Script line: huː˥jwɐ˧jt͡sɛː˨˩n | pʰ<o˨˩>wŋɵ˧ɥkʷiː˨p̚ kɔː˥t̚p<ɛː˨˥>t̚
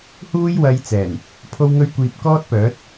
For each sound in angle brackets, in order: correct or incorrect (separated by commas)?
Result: incorrect, incorrect